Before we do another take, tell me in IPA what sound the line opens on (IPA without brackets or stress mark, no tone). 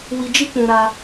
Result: w